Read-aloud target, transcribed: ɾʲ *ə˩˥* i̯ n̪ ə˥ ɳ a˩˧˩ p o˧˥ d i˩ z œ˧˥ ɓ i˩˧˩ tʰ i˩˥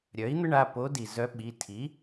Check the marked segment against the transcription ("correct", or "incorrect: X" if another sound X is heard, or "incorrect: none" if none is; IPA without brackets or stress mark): incorrect: œ˩˥